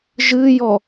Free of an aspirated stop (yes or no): yes